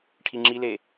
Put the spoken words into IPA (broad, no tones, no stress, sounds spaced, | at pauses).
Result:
ʈʰ i ŋ͡ǁ i l e